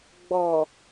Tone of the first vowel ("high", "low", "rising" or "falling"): low